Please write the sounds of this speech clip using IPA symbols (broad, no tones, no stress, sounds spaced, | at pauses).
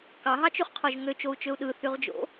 k ɑ ɦ ɑ t͡ʃ y χ qʰ o ʒ ŋ ø t͡ʃ o u̯ t͡ʃ ø u̯ ɗ ɯ θ y ʁ d͡ʒ o̰